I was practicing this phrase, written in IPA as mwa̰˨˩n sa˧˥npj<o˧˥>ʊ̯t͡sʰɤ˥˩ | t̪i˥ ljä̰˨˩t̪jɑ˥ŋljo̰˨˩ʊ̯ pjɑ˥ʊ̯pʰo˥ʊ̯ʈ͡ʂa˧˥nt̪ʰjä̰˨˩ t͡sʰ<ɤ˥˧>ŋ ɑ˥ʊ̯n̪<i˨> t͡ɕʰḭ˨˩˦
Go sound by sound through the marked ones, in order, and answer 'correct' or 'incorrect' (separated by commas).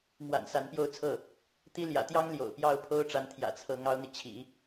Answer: incorrect, incorrect, correct